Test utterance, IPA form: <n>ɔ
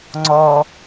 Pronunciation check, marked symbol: incorrect: ŋ͡ǀ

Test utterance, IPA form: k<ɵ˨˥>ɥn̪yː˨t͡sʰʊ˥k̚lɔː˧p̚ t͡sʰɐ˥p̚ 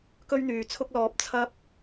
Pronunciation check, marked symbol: incorrect: ɵ˥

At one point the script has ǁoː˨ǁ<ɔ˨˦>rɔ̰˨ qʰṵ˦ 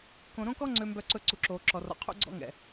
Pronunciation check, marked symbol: incorrect: ɔ˨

